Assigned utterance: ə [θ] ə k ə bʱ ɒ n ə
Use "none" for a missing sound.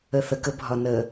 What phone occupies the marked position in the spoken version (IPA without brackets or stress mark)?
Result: θ